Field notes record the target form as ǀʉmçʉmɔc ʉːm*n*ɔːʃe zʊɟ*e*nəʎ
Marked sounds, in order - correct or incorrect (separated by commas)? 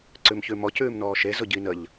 correct, incorrect